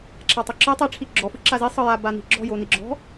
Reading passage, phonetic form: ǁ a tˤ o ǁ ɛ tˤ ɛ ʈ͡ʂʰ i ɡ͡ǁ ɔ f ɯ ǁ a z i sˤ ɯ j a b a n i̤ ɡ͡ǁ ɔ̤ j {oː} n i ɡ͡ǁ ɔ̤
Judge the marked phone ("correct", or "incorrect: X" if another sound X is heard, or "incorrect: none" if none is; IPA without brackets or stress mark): incorrect: o